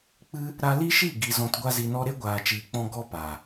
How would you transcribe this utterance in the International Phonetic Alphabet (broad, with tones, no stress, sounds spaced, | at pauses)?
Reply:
k͡p ɨ˦ | ɾ a˧ l i˦ ʃ i˦˨ ɡ i˨ z ɔ̃˨ t ɡʷ a˧ z i˨ n ɔ˧ ɾ e˦ ɡʷ aː˨ t͡ʃ iː˨ k͡p ɔ̃˧ ɡ ɔ˦ p aː˨